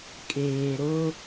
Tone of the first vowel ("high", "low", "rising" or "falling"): low